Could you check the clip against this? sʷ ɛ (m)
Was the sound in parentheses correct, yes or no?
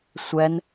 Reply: no